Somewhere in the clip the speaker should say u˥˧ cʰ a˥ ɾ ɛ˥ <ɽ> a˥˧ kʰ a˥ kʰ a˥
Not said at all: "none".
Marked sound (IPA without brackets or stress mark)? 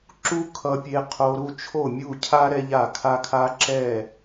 ʎ